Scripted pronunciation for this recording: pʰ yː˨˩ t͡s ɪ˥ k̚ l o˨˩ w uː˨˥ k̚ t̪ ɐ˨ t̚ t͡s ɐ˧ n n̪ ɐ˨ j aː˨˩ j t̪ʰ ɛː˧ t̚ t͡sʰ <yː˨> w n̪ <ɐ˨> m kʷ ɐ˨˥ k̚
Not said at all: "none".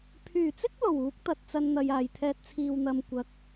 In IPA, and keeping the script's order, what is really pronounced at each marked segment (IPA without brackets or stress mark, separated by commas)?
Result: iː˨, ɐ˨